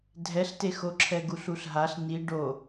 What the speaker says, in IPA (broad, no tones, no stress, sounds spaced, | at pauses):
dʱ ɛ ɬ t e x o ǁʰ ɛ ɡ u ɬ u ɬ ɦ a ɬ n i ɖ o